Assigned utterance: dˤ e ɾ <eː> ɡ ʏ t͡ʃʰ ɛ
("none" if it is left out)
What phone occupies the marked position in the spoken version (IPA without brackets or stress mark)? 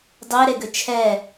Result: e